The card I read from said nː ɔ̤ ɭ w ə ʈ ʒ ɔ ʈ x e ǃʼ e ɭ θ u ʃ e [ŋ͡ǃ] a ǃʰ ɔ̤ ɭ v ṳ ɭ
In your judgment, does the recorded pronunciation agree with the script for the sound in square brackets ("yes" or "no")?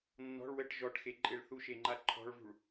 yes